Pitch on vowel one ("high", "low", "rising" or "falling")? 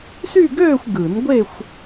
falling